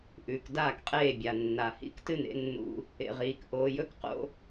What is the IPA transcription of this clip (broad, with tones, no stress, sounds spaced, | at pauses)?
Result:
ʔ ʉː˨ k d aː˦˨ k qʼ eː˦˨ bʲ a˨ nː a˨ h ḭ˦ k t ɨ˦ n ḛ˨˦ nː ṵ˧ | ḛ˨ ʁ iː˨ k ʔ oː˧ j ɵ˦ k q o̰˦